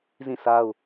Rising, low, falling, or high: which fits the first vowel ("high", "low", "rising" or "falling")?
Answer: falling